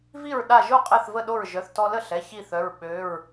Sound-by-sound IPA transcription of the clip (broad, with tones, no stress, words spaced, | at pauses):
vi˥˩ɹ ɗa˧˩ʒo˥˩ qʼɛ˥˩θvə˥˩ɗo˥˩ɹ ʒœ˩˧˩θtɔ˧lə˥˩ɬɛ˩˧˩ çi˥˩θœ˩˧˩ɹ ɓø˩˧˩ɹ